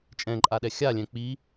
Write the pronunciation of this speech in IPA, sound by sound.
t͡ʃʼ ɛ̃ ǃʼ a ɗ ɛ xʲ a lʲ ɛ̃ k͡p i

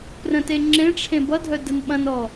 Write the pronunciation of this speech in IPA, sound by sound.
p r ə̃ t e ŋ͡ǁ ẽ ʈ͡ʂʰ ẽ b ʌ dʱ œ d ə n ɓ ɐ̃ n ɔ

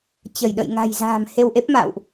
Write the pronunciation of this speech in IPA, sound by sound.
t͡ɕ ə˧˩ j ɗ ə̰˧˨ j ŋ a̤˨˩ j z a̤ː˨˩ m h e˧ w ʔ e˦˥ p̚ m a̰ː˧˨ w ʔ

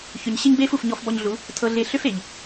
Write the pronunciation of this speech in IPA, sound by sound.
ç ʏ˨ ɲ ɕ ɪ˦ ɲ b eː˦ f u˨ f ɲ ɔ˧ f b ɔ˧ ɲ ɮ u˨˦ | tʰ ɤ˧ ɮ ɪː˧ ɬ ʏ˦ f e˨ ʎ

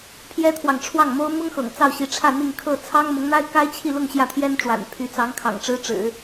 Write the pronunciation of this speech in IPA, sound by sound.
pʰ j ɛ˥ t̪ʰ w ɑ˨ ŋ ʈ͡ʂʰ w ɑ˥˩ ŋ m o˥ ʊ̯ m ʊ˥ ŋ x ɤ̰˨˩ ŋ t͡s ɑ˥˩ ʊ̯ ɕ i˧˥ ʈ͡ʂʰ ä˥˧ n̪ i˥˧ ŋ kʰ ɤ˥˩ t͡sʰ ɑ˥ ŋ m ʊ˧˥ ŋ n̪ a˥ ɪ̯ k a˥ ɪ̯ t͡ɕʰ i˥˧ l ʊ˥˧ ŋ ɕ j ä˥˩ t̪ʰ j ɛ˥ n ʈ͡ʂ w a̰˨˩ n pʰ y˧˥ t͡s ɑ˧˥ ŋ kʰ ɑ̰˨˩ ŋ ʈ͡ʂ ɻ̩˥ ʈ͡ʂ ɻ̩˨˩˦

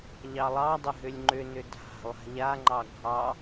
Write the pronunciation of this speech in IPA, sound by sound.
ʎ ɑ lˠ ɑ dˤ ʏ ɦ ʏ lʲ ŋ͡ǃ ʏ n ʏ dʱ a̤ lˠ a̤ ʎ a ŋ͡ǃ ɑ ɡʱ ɑ

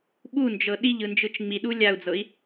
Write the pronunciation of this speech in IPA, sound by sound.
ɓ u n d͡ʒ ɤ ɗ i ʎ ɯ n d͡ʒ ɯ t͡ʃ ŋ͡m i ɗ u lʲ a u̯ d͡z ɤ i̯

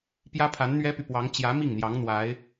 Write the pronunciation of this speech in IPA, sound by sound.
p j ä˥ pʰ a˧˥ n n̪ ɥ ɛ˥ p y˨ p w ɑ˧˥ ŋ t͡ɕ j ä˧˥ m i˥˩ ŋ n̪ j ɑ˧˥ ŋ n̪ w a˧˥ ɪ̯

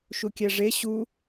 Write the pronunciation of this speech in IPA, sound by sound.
ʃ u kʲ æ ʐ e ɕ u

